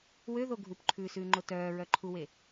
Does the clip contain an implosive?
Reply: no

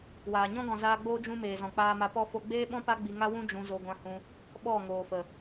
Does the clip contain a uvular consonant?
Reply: no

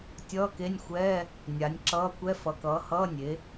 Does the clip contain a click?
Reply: yes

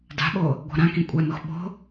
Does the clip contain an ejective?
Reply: yes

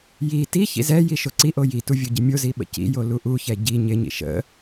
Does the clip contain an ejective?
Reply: no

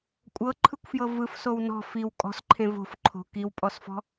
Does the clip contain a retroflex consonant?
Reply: no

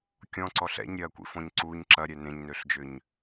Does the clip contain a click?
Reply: yes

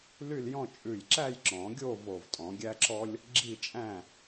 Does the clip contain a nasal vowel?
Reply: yes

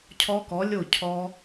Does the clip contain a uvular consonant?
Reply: no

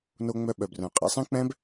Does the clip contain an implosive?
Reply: yes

